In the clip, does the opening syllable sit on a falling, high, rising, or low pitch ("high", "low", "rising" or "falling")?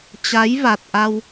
rising